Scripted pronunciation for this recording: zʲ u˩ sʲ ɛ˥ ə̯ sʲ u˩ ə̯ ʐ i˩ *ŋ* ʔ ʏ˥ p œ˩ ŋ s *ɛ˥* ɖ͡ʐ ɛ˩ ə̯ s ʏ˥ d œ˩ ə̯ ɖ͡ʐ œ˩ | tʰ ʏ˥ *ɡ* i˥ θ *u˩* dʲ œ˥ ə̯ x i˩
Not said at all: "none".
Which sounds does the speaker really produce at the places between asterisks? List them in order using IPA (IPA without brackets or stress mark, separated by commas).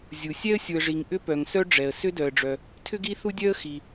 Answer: ŋ, œ˥, ɡ, u˥